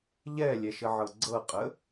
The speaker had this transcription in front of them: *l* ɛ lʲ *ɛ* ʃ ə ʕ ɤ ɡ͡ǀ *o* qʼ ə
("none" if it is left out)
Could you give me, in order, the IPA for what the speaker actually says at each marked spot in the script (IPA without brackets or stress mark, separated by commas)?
ʎ, ɛ, ɤ